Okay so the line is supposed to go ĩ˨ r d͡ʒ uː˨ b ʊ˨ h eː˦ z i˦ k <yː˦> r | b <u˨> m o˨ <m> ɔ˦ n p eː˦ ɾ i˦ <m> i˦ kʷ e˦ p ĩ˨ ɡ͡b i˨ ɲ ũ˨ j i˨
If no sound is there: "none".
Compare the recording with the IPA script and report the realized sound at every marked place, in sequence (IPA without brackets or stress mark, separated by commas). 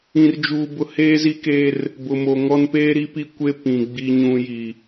eː˦, ʊ˨, ŋ, p